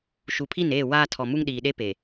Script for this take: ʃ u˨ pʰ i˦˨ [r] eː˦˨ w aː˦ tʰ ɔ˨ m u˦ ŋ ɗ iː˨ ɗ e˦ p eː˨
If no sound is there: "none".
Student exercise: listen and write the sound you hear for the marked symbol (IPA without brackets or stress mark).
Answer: n